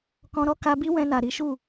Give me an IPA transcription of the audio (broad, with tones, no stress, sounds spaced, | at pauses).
k ɔ̃˧ ɾ ɔ˦ k a˧ b i˦ w ɛ̃˧ n a˨ ɾ i˨˦ ʃ u˦˨